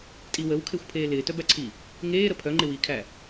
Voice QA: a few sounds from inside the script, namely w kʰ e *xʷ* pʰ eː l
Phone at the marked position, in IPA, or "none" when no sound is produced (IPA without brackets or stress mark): xʷ